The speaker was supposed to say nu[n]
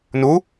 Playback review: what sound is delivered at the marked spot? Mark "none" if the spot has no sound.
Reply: none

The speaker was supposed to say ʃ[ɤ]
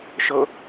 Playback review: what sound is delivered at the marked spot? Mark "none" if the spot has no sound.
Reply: ɤ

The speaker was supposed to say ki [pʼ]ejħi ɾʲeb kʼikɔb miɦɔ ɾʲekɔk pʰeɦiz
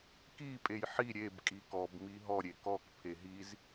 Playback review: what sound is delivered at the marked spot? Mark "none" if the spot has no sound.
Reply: pʼ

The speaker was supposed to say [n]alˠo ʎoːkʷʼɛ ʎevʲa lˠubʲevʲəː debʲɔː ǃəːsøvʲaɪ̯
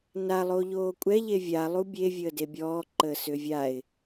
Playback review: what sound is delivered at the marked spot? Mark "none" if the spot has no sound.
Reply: n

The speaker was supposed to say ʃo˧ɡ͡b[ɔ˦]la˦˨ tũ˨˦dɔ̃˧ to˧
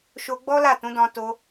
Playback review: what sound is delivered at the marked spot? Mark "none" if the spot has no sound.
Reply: ɔ˦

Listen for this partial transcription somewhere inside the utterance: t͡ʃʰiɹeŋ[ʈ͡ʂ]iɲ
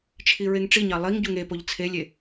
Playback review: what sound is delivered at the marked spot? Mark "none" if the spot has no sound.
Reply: ʈ͡ʂ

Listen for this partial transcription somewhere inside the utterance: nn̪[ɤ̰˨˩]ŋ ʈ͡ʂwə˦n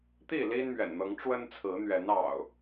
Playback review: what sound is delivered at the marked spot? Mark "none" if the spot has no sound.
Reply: ɤ˨˦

